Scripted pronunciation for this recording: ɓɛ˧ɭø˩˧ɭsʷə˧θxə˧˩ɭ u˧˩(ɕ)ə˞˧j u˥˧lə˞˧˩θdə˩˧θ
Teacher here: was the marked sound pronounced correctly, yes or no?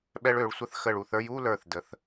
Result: no